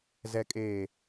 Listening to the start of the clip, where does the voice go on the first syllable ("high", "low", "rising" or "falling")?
low